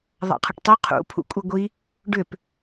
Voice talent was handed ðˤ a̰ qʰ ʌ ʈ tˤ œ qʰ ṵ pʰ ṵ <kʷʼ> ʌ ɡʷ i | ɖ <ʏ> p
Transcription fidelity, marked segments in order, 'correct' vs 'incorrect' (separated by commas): correct, correct